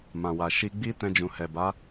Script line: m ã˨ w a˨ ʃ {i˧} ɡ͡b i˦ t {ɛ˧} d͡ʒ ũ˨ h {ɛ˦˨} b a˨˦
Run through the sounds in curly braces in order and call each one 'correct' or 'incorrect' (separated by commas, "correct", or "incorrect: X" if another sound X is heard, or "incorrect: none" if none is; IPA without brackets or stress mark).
correct, incorrect: ɛ̃˧, incorrect: ɛ˨